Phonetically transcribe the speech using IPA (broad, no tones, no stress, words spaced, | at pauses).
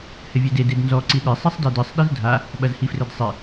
hɘvʲede dednzɔ ǀiɗe sˤisˤdɛdɨsˤ ɗizdʱa | ɓɐzhifrɘdsˤi